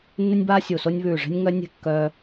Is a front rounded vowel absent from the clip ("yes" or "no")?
no